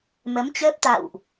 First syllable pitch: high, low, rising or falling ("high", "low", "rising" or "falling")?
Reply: rising